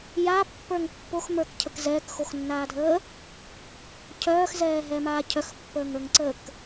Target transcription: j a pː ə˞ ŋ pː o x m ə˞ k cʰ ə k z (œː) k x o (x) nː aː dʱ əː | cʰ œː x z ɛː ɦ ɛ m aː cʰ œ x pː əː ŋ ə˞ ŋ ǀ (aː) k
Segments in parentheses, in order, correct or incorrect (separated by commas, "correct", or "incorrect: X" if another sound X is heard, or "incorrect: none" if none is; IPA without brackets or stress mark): incorrect: ɛː, correct, incorrect: əː